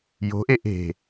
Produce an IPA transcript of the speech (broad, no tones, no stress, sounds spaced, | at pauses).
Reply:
j o̤ ʔ e ʔ e̤